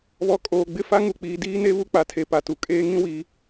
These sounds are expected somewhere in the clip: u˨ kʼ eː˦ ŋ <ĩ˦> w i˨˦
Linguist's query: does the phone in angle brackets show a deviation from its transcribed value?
no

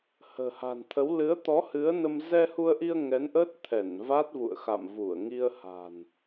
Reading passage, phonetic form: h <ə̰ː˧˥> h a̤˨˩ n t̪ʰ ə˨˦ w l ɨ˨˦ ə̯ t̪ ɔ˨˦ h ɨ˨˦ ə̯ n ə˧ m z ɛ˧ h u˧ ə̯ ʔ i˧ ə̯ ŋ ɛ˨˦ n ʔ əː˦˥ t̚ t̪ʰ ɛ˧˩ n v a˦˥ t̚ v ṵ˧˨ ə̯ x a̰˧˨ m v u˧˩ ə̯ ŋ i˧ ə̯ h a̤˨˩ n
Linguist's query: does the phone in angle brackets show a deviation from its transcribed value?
yes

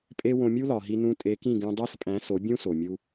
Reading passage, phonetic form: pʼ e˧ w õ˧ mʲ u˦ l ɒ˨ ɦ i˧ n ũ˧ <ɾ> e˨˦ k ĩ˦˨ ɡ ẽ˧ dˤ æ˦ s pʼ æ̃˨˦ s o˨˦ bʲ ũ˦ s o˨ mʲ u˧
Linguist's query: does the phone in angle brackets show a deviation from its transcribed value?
yes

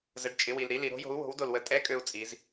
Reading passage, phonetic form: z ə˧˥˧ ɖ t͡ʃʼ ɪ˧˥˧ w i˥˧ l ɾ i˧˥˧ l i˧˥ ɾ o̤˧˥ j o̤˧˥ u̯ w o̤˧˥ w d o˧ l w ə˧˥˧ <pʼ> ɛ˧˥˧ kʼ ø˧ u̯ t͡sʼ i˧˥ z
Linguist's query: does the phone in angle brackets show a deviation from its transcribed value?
yes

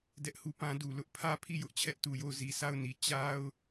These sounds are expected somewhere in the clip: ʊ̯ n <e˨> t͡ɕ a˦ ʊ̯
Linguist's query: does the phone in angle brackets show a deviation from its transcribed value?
yes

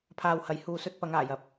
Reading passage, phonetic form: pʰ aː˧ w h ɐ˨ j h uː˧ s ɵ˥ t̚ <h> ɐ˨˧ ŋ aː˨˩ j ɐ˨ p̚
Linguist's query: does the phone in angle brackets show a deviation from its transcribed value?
yes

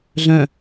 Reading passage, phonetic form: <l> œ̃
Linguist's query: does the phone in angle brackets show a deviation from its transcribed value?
yes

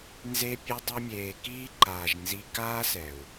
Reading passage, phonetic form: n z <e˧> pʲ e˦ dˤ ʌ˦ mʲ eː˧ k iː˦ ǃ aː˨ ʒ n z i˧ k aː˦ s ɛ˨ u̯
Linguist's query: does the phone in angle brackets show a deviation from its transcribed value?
yes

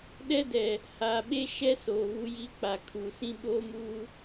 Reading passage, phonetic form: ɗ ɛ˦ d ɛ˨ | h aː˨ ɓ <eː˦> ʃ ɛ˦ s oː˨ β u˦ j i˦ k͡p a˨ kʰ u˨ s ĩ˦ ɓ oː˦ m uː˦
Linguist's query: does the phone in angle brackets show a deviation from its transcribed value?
yes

